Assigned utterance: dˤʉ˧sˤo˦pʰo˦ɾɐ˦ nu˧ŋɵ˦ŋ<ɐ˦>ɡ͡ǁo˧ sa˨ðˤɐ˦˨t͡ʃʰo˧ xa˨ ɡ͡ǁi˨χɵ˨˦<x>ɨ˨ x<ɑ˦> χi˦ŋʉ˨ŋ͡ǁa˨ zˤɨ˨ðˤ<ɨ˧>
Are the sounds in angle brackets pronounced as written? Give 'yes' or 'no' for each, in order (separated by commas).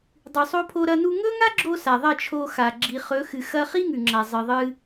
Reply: no, yes, no, yes